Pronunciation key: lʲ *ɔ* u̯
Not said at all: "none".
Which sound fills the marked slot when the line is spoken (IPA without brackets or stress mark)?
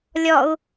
ɔ